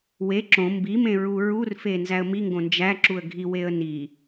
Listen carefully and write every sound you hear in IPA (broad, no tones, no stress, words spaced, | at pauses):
we ǁõ mbimẽ ɹuɹurfe nzæə̯miŋɡõ nd͡ʒæǁuə̯ ɡʱiweə̯ ni